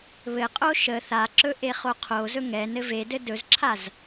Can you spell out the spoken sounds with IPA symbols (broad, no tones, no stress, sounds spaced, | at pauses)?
β ɘ qʼ o ʃ ə θ a ǁ ɵ ʔ e χ o qʰ o z ɵ ŋ ɛ n ɘ v e d ɘ d ɵ z ǁʰ a z